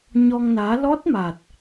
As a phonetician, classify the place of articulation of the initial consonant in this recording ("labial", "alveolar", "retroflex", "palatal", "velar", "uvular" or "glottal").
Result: palatal